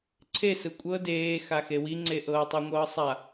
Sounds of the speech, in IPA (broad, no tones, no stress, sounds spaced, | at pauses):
ǀʰ e s ɯ kʷʼ ɤ d eː x a x e w i ŋ͡ǀ e ʔ ɤː tˤ o ŋʷ ɤː sˤ a